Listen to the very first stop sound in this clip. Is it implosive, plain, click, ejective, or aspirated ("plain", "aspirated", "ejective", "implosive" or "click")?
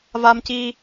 plain